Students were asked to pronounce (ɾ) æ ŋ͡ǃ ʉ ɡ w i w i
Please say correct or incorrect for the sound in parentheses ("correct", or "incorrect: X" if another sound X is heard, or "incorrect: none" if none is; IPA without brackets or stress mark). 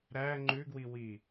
correct